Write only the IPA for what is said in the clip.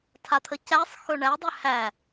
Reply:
tʰ a t̪ʰ ə c æ sˤ x ɵ ɳ æ dˤ ʏ h æ

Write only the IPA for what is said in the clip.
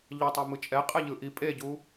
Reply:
ʎ ʌ tˤ ɛ m ɯ t͡ʃʼ ɛ qʼ ɛ ʎ ɯ ʔ i pʼ e ɟ u

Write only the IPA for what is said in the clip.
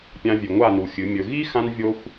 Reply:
pʲ ã˧ vʲ ʉ˨ ŋʷ a˦˨ n u˨ xʲ ɨ˨˦ mʲ ɵ˧ ɣ i˦ x ã˦ n vʲ o˦ xʷ

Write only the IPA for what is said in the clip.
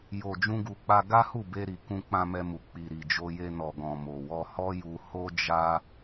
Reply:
j o˨ d͡ʒ ũ˧ ɡ u˨ k͡p a˧ ɡ a˦ h u˦˨ b e˧ ɾ i˨ k ũ˧ k͡p ã˧ m ɛ˧ m u˨ k͡p i˨ ɾ i˨ d͡ʒ o˧ j e˧ n ɔ˨ ɡ ɔ̃˨ m o˨ w ɔ˧ h ɔ˦ j u˧ h o˦ d͡ʒ a˦

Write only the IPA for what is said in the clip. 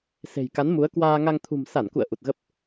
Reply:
s e̤˨˩ j k a˨˦ n m u˨˦ ə̯ k w aː˧ ŋ a˧ ŋ t̪ʰ ṳ˨˩ m s a˧˩ n k ṵ˧˨ ə̯ ʔ u˨˩ t̚ ɣ ə˦˥ p̚

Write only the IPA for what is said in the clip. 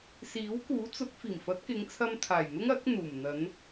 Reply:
s iː˨˥ w k uː˨˥ t͡s ʊ˨˥ k̚ f iː˨˩ m f ɐ˨˥ t̚ k ɪ˨˧ ŋ t͡sʰ ɐ˧ m t̪ʰ aː˨˩ j n̪ ʊ˥ ŋ ɐ˨˥ k̚ n̪ uː˨˩ m n̪ ɐ˨˧ n

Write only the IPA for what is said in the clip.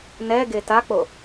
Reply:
n ɛ ɡ e t a k͡p o

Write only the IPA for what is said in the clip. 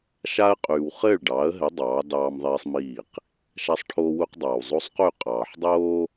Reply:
ʃ a˦ ə̯ qʼ yː˨ w χ ɘː˦˨ ɭ ɖ ɑː˨˦ ə̯ ɦ ɘ˨˦ dˤ ɑː˨˦ d ɑː˦ m ðˤ iː˦ sˤ m iː˦˨ q | ʃ a˦ sˤ ʈʰ oː˦ w u˦ q dˤ aː˨ w zˤ o˦ sˤ q y˦˨ qʼ ɑː˨ ħ dˤ oː˦

